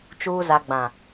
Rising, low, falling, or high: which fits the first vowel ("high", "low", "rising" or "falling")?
low